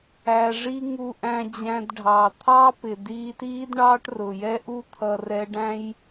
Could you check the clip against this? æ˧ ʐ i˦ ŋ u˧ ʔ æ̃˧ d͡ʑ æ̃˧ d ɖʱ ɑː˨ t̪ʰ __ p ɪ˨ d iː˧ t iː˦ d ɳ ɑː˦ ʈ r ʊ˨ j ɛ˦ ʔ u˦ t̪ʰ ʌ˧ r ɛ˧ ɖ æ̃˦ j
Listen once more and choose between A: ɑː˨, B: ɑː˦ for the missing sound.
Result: B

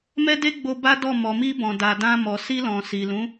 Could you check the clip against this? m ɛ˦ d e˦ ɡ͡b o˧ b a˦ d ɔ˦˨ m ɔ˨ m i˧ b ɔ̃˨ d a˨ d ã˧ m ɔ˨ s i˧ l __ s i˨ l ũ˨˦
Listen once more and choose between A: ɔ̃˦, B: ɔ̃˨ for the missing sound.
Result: B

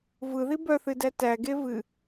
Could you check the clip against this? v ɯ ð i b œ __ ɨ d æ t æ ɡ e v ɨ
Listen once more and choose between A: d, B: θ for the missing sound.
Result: B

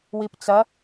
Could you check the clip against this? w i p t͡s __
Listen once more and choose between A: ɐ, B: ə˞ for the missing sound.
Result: A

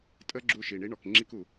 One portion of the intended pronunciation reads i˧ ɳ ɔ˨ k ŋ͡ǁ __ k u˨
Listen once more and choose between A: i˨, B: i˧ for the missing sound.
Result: B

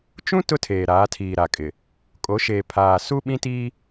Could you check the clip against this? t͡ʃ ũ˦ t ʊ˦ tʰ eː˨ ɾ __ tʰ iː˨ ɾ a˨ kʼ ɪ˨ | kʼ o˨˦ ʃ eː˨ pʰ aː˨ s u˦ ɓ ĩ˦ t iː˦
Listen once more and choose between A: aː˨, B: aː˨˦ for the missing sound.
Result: B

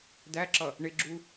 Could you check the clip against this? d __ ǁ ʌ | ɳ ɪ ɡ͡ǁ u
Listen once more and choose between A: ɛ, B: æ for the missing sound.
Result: B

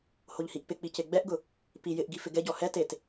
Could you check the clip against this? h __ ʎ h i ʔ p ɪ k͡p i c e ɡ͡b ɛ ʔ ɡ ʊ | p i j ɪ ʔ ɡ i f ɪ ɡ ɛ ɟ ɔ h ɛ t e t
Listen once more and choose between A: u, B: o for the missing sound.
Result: B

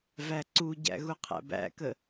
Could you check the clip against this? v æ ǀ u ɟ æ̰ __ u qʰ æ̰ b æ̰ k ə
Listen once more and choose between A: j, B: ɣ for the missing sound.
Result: B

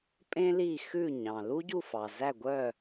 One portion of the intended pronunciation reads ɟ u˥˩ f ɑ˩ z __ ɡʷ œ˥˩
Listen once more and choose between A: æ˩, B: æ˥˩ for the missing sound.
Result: B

